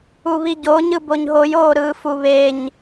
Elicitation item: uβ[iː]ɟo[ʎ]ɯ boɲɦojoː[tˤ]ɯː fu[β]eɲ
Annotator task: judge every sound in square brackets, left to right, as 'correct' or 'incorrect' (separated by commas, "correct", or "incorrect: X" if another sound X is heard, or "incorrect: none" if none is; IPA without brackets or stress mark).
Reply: incorrect: i, incorrect: ɲ, incorrect: ɾ, correct